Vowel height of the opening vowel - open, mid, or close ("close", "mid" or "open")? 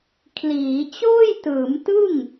close